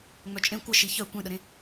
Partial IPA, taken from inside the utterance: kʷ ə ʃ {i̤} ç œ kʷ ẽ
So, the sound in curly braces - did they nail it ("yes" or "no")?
no